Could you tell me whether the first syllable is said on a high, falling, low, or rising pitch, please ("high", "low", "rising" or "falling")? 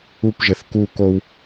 high